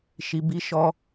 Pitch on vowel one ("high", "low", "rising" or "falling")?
low